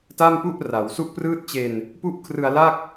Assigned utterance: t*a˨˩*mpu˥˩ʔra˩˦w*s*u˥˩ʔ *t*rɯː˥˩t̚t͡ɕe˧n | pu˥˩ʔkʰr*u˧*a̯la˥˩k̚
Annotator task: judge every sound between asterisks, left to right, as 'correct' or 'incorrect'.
incorrect: a˥˩, correct, incorrect: p, incorrect: ɯ˧

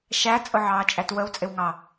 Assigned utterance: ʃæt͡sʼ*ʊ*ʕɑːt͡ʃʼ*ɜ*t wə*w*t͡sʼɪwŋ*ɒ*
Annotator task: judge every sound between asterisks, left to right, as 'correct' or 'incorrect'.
correct, incorrect: æ, correct, incorrect: ɑ

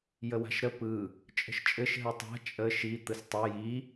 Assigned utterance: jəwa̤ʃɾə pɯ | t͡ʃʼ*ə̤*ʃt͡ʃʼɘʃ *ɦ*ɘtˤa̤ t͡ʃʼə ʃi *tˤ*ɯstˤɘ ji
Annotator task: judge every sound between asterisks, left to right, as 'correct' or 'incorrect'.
correct, correct, incorrect: t̪

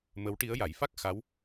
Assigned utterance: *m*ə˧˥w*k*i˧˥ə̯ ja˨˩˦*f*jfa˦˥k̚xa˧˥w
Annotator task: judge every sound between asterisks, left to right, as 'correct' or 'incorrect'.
correct, incorrect: ʈ, incorrect: none

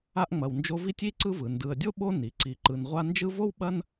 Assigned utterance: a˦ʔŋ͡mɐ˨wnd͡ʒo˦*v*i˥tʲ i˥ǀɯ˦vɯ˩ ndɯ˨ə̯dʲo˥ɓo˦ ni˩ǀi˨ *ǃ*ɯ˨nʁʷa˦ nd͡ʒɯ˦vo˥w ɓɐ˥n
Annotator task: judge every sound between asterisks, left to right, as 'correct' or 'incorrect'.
correct, correct

